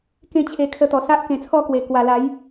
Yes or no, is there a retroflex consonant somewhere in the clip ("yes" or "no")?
no